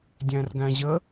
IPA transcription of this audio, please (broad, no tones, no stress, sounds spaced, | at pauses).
dʲ æ̃ r ɡ æ̃ ʑ ə